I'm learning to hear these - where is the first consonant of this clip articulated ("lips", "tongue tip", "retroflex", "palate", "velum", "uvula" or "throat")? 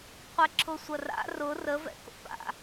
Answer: uvula